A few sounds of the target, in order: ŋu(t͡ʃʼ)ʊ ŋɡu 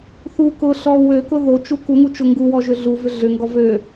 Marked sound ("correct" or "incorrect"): incorrect